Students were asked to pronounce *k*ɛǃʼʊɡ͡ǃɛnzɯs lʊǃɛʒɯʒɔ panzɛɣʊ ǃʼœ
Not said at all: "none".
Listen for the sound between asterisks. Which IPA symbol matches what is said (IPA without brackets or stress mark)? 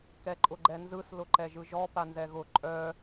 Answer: k